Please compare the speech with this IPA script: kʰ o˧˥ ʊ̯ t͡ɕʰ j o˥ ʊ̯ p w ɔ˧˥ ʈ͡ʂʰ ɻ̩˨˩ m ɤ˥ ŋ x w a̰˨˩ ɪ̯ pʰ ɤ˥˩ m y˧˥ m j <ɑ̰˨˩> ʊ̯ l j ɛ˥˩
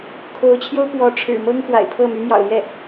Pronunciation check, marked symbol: correct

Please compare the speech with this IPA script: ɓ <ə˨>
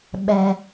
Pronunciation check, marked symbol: incorrect: ɛ˨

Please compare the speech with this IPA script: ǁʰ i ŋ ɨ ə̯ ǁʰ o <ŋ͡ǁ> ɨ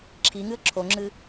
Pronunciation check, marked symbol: correct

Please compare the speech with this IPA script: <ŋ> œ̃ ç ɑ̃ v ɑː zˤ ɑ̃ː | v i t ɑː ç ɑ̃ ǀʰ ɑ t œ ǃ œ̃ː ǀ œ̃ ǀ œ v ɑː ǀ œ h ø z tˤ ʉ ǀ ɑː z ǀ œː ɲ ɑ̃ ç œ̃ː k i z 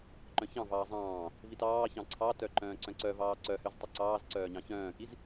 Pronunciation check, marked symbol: incorrect: ǃ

